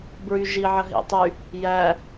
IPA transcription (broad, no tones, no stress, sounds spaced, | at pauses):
b ɹ y ʒ i ʕ ə ɦ ḛ tˤ y | j æ